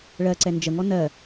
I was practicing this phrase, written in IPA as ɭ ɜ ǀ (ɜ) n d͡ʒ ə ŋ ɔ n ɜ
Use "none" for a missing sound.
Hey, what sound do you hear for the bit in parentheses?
ɛ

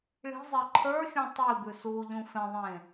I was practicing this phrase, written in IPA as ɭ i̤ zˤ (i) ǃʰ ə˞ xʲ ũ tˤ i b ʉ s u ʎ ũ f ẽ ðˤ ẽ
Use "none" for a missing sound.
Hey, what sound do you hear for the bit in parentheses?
e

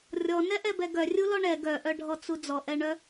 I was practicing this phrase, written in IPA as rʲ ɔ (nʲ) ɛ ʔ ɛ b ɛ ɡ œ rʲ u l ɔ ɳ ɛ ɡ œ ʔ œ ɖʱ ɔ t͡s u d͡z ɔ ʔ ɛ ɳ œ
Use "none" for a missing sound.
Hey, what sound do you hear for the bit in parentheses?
n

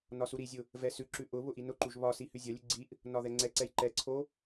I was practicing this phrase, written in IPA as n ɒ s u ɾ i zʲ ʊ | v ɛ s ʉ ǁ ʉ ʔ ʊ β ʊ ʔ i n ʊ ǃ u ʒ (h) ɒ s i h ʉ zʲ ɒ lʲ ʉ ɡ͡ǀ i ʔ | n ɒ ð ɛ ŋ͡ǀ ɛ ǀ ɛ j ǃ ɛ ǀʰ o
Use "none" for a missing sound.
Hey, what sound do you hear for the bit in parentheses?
β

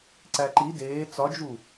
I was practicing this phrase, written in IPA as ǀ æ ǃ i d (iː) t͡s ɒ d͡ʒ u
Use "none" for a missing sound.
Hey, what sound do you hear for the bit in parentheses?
eː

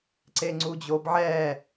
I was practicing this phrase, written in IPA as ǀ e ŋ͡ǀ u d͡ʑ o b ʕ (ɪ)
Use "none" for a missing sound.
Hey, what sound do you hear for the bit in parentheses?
ɛ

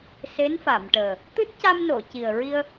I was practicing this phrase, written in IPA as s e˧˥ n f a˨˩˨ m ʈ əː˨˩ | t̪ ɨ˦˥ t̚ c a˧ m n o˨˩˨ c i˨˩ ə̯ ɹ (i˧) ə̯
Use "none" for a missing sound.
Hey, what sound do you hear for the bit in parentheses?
i˧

